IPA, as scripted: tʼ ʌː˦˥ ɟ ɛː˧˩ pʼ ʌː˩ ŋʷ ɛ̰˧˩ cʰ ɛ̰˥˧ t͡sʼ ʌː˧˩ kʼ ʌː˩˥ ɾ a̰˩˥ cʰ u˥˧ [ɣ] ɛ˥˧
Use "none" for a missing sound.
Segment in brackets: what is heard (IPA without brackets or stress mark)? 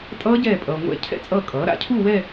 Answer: w